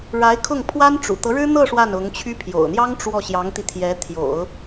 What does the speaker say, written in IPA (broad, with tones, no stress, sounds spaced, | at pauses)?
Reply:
ɻ a˧˥ ɪ̯ kʰ ʊ˥˩ ŋ pʰ w a˥ n ʈ͡ʂ ṵ˨˩ t̪ ɤ˧˥ ɻ ɻ̩˥ n̪ ɤ˥˧ ʂ w a˥˩ n ʊ˧˥ ŋ t͡ɕʰ y˥ pʰ j o̰˨˩ ʊ̯ n̪ j ɑ˥ ŋ ʈ͡ʂ w ɔ˥˩ ɕ j ɑ˧˥ ŋ t̪ i˧ t̪ʰ j ɛ˧˥ t̪ʰ j o̰˨˩˦ ʊ̯